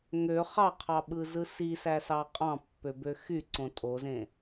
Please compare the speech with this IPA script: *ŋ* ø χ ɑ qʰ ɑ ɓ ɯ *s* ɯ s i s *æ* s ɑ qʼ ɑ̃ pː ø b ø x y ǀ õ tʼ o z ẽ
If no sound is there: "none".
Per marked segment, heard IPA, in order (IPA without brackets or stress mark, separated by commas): ŋ, z, æ